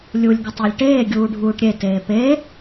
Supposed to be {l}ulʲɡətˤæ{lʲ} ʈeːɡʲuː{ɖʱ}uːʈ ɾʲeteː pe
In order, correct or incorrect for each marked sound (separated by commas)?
incorrect, correct, correct